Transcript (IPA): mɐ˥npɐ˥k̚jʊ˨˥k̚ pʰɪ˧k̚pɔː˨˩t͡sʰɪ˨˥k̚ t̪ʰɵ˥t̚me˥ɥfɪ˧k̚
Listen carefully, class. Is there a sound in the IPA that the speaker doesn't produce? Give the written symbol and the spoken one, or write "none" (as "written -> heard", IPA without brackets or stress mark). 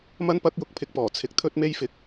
ɥ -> j